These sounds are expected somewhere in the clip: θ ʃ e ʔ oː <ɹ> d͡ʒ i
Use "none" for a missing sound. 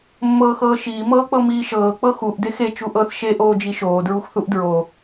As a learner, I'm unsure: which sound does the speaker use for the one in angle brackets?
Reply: none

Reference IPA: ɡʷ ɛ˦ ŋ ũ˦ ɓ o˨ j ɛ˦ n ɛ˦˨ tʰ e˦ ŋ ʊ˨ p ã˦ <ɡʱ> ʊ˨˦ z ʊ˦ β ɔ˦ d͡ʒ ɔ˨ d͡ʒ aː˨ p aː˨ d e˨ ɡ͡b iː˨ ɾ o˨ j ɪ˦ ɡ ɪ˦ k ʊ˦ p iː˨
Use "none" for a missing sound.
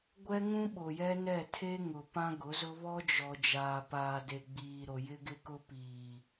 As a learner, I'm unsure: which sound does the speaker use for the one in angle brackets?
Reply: ɡ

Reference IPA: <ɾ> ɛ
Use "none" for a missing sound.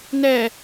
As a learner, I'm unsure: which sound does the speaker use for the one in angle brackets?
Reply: n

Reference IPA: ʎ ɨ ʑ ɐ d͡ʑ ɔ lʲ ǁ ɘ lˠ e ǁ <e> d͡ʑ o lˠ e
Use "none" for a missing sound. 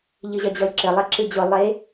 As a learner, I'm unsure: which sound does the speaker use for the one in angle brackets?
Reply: ɨ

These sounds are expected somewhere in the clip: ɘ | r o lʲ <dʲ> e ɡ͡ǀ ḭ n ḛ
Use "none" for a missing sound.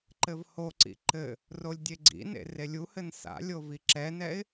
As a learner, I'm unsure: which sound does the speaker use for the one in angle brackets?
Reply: dʲ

